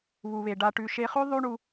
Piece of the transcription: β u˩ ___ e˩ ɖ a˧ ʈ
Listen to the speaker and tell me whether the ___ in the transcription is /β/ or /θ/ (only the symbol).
β